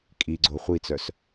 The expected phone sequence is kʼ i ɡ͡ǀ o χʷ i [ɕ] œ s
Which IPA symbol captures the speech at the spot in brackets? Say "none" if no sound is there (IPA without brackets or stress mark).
t͡s